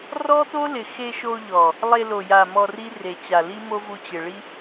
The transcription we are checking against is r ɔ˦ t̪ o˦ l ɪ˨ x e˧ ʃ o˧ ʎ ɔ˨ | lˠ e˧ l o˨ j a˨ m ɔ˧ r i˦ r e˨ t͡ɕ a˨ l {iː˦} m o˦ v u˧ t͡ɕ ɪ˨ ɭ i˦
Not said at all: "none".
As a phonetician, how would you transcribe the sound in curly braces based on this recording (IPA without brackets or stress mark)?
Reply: i˦